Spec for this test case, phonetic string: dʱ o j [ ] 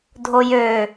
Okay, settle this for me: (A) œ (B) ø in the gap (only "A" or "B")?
B